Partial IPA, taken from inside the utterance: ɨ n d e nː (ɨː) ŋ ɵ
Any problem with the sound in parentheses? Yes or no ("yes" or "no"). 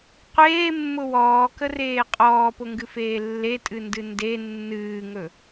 no